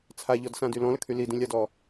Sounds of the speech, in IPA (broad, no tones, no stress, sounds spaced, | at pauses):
t͡sʰ a ʎ ɔ d s ã d y l ɔ̃ l ə kʰ y l i d ĩ lʲ a d ɔ